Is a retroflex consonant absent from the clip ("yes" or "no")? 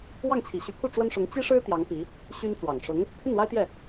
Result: no